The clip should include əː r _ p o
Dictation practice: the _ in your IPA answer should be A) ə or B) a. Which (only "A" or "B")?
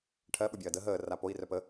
B